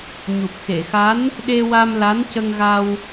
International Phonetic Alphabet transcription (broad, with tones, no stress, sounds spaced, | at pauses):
ɲ u˨˩ p̚ x e˨˩˨ x a˧˥ n | ɗ e˧ w a˧ m l a˧˥ n c ə˧ ŋ ɣ a˧ w